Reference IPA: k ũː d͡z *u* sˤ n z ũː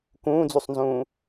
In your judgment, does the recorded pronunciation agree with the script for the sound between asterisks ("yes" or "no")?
yes